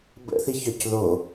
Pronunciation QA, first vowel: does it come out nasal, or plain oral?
oral